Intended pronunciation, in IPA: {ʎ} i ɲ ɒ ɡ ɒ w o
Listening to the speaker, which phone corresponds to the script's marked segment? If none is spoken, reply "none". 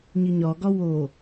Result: ɲ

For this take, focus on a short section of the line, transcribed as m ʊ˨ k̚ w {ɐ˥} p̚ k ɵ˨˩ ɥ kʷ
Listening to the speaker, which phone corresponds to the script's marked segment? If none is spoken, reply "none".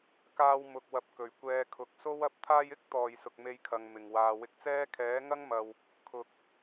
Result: ɐ˨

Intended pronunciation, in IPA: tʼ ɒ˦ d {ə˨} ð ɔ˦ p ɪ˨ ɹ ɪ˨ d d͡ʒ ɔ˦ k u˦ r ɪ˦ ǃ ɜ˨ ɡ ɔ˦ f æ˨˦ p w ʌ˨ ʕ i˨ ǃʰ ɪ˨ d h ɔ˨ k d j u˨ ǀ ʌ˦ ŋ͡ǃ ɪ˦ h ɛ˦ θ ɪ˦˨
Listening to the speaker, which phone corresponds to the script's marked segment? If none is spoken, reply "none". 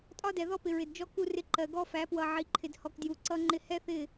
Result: ɛ˨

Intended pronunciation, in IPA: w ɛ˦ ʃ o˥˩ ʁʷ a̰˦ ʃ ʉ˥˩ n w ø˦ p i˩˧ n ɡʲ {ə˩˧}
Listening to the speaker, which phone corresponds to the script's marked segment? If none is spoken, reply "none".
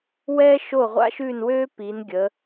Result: ə˩˧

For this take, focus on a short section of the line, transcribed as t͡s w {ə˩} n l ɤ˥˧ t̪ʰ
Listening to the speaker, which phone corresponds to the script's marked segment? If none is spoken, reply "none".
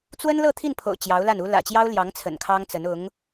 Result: ə˥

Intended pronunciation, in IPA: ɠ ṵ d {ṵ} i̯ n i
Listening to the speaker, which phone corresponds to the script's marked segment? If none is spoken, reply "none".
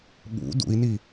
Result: ṵ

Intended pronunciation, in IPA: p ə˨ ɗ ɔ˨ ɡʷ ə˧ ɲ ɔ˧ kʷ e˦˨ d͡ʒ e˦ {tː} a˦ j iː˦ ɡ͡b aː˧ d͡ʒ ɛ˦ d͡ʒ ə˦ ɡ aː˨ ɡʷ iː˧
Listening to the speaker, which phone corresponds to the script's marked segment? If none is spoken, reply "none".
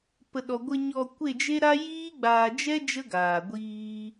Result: ɾ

